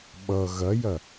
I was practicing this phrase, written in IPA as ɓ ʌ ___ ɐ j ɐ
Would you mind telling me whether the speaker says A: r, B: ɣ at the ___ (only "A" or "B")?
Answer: B